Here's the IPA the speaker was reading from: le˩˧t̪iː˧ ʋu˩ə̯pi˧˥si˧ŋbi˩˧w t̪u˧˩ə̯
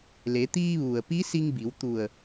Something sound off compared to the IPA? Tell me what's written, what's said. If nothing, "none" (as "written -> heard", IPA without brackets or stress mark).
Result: none